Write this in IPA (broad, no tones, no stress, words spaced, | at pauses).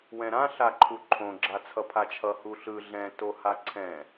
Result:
wɛ̃ɾã ɬaǃʰuǃʰõ ɡ͡ǁat͡sʰʌpʰat͡ʃʰʌ huɬɯ ɮɛ̃ tohaǀʰɛ̃